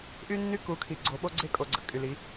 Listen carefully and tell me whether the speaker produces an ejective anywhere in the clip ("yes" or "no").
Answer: yes